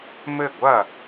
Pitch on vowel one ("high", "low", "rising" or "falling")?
falling